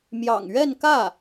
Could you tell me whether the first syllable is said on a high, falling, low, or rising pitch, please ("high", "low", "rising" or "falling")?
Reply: low